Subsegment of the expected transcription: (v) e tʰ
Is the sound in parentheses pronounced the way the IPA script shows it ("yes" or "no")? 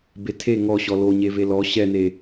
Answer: no